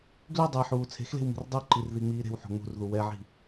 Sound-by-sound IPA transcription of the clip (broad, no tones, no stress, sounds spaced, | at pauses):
ɡ l y dˤ e ħ uː t͡sʰ e̤ x l e̤ w m i̤ r dˤ u ǃ i r ð i ŋ͡m iː ɾ e̤ w ħ o̤ ŋ͡m ṳ r ð u w ɛ ʕ i̤